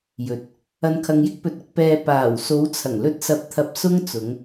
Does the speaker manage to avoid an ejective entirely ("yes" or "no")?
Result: yes